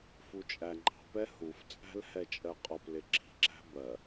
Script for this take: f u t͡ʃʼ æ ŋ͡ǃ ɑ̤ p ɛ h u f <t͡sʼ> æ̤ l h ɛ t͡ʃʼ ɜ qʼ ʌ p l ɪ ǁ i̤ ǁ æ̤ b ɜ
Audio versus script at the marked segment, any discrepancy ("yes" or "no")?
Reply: no